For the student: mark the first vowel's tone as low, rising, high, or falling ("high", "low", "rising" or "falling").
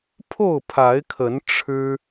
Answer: falling